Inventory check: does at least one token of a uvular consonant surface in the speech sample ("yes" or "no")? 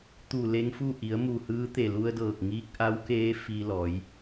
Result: no